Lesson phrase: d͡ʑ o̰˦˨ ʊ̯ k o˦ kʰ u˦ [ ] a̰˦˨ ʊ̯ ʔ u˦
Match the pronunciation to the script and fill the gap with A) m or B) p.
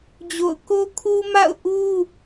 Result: A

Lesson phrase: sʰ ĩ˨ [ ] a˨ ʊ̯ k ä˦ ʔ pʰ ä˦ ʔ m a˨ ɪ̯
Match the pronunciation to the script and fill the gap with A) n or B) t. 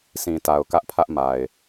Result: B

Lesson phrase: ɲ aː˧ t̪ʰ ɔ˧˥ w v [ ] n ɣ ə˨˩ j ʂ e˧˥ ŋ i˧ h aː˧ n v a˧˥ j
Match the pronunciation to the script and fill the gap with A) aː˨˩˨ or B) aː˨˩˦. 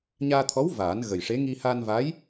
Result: B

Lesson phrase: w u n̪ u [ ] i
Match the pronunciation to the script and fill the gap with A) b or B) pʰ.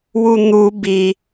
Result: A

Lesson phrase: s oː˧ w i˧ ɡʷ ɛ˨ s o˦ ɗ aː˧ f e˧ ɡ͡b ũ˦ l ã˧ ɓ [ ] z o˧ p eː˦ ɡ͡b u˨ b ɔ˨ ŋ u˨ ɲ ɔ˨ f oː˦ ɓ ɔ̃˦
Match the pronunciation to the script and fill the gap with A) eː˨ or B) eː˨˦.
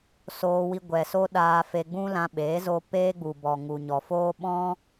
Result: B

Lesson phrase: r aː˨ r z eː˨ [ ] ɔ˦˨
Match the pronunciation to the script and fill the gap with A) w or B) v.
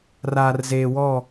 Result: A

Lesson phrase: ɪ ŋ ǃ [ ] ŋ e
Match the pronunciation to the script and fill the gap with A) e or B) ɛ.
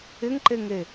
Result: A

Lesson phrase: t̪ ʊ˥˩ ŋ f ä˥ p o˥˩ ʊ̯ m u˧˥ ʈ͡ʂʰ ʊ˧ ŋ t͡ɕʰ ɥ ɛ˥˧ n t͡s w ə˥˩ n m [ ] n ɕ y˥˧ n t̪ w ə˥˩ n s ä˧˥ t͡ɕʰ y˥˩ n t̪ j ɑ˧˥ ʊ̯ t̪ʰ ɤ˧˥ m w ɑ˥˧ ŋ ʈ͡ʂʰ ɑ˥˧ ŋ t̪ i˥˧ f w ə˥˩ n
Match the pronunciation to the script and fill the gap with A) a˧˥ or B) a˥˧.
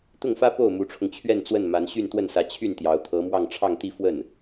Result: A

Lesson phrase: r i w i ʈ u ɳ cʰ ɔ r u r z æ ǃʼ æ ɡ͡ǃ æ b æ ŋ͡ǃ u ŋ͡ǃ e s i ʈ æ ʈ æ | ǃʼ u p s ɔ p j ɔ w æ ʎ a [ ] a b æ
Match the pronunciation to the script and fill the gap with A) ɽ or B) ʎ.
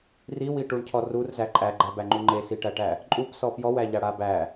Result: A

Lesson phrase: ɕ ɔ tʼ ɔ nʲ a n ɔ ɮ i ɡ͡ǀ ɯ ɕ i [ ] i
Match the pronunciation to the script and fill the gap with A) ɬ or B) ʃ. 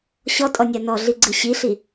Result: A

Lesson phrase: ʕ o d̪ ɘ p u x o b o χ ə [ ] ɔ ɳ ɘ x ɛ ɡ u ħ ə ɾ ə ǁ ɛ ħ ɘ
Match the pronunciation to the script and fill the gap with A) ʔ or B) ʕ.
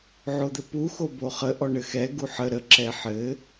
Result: A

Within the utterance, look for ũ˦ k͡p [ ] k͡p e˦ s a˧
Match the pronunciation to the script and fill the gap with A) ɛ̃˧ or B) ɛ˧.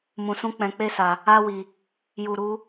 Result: A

